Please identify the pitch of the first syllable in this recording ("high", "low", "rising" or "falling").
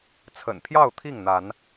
low